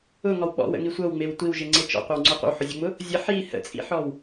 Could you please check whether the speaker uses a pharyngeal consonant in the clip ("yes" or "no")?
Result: yes